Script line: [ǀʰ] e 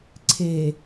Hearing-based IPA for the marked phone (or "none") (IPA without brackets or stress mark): ǀʰ